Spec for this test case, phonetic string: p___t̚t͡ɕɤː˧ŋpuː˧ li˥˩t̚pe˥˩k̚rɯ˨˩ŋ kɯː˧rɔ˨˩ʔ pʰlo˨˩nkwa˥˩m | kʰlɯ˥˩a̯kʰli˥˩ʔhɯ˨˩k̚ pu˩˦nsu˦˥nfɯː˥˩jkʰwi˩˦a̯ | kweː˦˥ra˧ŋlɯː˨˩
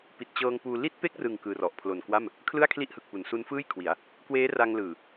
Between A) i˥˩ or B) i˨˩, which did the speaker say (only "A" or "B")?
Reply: B